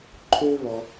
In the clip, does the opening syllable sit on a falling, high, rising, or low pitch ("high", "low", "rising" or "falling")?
high